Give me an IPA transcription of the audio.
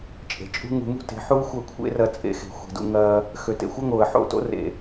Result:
t͡ʃʼe̤˨t͡ʃʼṳ˦ ŋṳ˧mṳ˦ te̤˨˦ħu˦ɪ̯ xʷɐ˦˨kʷʰḛ˦rɐ˧ t͡sʼḛ˧xe̤˨ xʷe̤˨dṵ˧ŋɐː˧ | xø˨tḛ˨xʷɐ˦ŋoː˨ə̯ ħo̰˦˨to̰˦rḛ˨

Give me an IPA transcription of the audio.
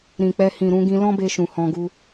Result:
ɾĩ˨k͡pɛ˧ hĩ˨ɾũ˧ɡĩ˧ lɔ̃˦be˧ʃũ˨ hɔ̃˧ɡu˧

